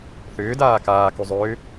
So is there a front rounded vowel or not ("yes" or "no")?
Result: yes